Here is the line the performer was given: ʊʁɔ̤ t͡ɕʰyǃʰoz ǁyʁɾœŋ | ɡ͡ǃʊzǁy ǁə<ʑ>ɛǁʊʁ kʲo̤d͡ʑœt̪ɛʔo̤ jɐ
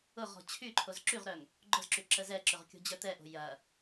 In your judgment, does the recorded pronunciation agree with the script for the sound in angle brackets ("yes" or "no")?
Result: no